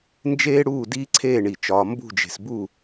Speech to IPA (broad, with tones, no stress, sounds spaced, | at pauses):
n d͡ʒ eː˥ ɽ uː˥˧ d iː˥ ǀʰ eː˥˧ ɳ i˧˩ t͡ʃ ɒː˧ m b ṳ˥˧ d͡ʒ e̤˧ s b u˥˧